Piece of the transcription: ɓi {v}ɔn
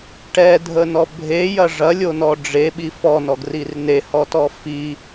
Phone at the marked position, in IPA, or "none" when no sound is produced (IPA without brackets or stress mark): f